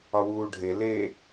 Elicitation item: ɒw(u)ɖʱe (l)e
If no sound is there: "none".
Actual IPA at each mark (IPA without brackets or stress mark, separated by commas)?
uː, l